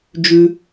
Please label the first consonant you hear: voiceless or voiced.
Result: voiced